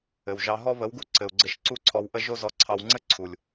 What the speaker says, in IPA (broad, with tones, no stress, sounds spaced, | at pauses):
ɘ˨ w ʒ ɑ˧ ɦ ɔ˦ β ə˨˦ w ɡ u˦ ǀ ɘ˧ u̯ ɡ͡ǀ ɘ˦ ʃ ǀ u˦ ǀʰ ɔ˧ w ʔ ə˦ ʒ o˦ z ɔ˧ ǀʰ ɑ˧ w ŋ͡ǀ ɘ˦ ǀʰ u˨ lʲ